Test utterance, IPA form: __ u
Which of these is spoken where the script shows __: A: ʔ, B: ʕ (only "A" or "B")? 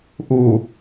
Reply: A